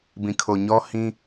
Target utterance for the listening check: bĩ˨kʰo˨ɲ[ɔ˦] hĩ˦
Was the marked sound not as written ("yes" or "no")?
no